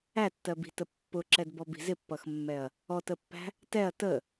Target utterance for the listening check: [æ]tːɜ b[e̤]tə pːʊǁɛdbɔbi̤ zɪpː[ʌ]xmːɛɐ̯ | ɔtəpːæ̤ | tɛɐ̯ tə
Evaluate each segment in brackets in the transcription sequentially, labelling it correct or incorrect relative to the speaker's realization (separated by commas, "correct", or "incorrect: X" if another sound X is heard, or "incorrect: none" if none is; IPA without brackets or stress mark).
correct, incorrect: i̤, correct